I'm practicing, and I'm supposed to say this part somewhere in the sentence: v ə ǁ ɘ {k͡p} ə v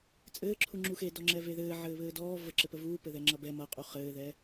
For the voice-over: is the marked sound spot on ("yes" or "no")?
no